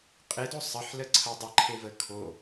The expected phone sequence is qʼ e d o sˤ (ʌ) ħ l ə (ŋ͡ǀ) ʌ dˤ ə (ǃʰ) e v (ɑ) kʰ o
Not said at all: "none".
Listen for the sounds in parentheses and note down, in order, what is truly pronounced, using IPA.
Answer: ʌ, ǀʰ, ǃʰ, ə

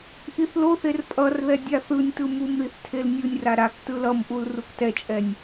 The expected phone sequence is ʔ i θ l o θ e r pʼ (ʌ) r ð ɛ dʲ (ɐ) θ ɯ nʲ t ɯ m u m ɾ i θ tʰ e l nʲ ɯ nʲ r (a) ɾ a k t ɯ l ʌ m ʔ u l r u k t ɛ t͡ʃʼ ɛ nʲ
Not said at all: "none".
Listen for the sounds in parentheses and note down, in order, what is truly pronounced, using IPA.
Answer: ʌ, a, a

